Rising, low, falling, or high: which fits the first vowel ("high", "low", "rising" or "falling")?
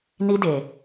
high